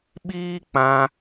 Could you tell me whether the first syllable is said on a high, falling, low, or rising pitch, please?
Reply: high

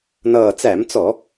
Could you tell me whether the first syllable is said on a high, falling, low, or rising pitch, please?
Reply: low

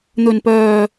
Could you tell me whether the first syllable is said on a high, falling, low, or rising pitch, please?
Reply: low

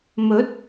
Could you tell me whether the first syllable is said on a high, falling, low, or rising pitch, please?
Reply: rising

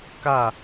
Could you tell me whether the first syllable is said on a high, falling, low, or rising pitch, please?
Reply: falling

